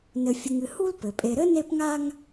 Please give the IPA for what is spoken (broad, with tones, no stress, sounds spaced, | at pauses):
n ɘ˨ fʲ ɨ˨ ŋ ɨ˨ h u˦ l p ɘ˩ pʼ e˨ ɾ ɘ˥ n e˦ p ŋ a˦ ŋ